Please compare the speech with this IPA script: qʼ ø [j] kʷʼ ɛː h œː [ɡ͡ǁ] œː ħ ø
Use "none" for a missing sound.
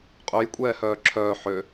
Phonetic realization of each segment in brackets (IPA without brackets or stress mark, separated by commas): j, ǁʰ